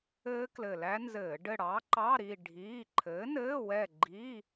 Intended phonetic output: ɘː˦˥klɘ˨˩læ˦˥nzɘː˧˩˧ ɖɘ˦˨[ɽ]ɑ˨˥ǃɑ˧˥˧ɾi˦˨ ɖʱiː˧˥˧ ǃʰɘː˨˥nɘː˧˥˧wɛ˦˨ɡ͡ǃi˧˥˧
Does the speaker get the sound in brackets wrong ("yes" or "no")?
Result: no